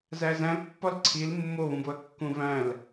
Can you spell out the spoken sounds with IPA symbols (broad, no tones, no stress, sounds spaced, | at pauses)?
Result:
z æ z æ̃ l pː ɒ l ǀʰ i l mː o β ũ b o ɐ̯ kː ũ v æ̃ l